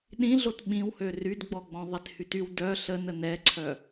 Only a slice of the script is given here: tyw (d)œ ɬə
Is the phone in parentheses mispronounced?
no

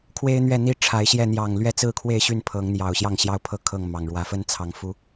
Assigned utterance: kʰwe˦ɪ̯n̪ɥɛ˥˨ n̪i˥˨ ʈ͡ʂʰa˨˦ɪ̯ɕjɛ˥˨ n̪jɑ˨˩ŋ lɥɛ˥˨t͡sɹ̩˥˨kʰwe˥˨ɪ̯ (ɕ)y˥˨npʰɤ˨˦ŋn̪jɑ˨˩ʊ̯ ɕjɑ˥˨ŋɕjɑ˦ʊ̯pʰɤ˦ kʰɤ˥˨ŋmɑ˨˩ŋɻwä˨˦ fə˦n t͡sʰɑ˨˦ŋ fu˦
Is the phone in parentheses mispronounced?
no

